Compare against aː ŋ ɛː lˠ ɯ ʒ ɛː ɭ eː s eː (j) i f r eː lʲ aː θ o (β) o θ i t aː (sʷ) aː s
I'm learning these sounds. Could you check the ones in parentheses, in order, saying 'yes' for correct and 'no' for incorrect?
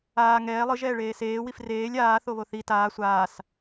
no, yes, yes

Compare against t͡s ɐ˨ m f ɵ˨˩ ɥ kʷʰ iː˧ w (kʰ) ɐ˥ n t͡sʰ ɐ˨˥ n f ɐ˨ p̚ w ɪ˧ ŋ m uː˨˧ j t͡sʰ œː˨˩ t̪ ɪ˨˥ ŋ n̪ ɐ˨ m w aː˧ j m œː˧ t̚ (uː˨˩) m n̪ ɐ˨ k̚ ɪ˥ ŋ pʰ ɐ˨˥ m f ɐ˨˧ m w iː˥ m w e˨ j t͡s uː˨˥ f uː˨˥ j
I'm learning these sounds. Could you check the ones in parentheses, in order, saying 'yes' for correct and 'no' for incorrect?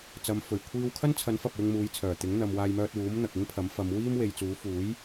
yes, no

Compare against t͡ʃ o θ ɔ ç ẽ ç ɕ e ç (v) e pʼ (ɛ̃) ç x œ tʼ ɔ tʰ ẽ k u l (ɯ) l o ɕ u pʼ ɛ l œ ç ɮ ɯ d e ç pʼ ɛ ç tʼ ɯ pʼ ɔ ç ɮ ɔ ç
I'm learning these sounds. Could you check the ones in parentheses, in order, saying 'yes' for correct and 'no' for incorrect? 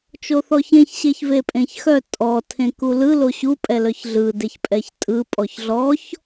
yes, no, yes

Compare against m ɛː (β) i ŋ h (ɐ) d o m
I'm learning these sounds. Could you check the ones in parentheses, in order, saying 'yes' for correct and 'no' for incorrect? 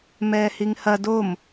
no, yes

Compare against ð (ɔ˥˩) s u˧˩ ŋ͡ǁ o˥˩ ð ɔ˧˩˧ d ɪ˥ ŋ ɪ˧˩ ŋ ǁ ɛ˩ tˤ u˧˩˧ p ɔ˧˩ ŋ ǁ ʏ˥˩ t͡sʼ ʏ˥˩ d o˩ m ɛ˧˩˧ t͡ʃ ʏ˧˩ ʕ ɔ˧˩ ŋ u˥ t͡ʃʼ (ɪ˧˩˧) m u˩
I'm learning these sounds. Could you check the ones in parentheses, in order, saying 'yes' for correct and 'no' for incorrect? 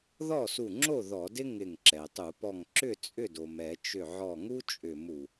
yes, no

